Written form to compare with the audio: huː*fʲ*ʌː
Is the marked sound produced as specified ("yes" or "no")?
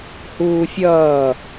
yes